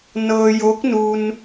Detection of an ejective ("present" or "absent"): absent